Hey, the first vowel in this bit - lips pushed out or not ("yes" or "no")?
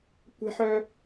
no